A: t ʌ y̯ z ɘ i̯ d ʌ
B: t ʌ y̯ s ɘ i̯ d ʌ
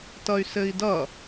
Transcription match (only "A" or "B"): B